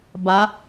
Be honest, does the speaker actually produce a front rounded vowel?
no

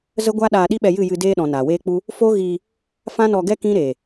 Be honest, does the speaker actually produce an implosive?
yes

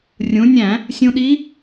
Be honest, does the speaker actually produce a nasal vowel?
yes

